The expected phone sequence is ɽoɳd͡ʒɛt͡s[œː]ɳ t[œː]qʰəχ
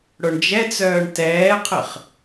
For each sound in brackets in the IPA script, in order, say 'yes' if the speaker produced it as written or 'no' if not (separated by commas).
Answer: yes, no